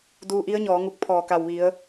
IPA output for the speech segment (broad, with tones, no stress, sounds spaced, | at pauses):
d uː˧ ʔ i˧˥ ə̯ ɲ ɔː˩˧ ŋ u˧˩ k̚ pʰ ɔː˧˩ k a˧˩ w ʋ i˩˧ ə̯